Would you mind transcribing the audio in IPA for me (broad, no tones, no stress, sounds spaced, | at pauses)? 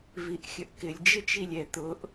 v i ʔ xʲ ə ʔ k ɪ lʲ d͡ʒ ɪ t͡ʃ i lʲ ɛ t̪ ʊ ʔ